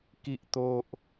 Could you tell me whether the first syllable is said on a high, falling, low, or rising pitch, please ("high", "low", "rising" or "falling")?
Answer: low